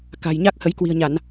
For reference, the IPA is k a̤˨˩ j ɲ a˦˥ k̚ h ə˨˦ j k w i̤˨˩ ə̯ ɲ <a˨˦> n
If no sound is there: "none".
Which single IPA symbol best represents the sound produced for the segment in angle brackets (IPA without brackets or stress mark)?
a˧˩˨